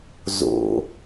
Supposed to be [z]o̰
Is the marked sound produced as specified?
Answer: yes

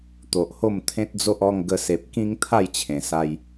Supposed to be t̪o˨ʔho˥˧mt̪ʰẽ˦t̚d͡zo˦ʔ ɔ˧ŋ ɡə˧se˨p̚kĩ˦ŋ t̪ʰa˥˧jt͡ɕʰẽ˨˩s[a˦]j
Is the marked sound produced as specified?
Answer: no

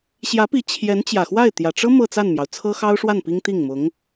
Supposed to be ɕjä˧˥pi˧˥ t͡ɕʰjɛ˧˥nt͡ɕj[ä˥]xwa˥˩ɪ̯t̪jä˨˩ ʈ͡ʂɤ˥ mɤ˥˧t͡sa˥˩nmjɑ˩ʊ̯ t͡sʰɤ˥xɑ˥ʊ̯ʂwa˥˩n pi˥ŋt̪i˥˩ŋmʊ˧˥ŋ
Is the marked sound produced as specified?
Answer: no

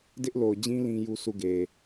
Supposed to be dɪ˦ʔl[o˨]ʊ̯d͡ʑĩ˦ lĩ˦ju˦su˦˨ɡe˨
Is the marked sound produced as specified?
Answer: yes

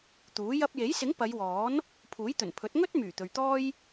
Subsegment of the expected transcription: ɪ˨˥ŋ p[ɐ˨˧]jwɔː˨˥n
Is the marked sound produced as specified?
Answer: yes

